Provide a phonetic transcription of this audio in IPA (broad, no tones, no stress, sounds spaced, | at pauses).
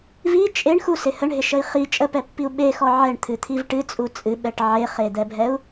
v i t͡ʃʼ e ɳ x u s ɪ h ə ɳ ɦ ɪ ʃ ə i̯ χ i t͡ʃʼ ə p ɛ pː i u̯ ɓ e x ɔ ʕ ɛ ɳ t̪ʰ ɨ t̪ʰ i v ʈ ɨ t͡sʼ u t͡sʼ ɨ ɓ ɛ ʈ ʕ e χ e d̪ ɛ bʱ ɛ u̯